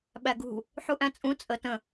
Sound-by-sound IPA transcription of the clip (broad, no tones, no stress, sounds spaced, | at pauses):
ɓ æ ɡ ṳ | ħ u ʔ æ̃ t͡sʼ ũ t͡sʼ ə t ə̃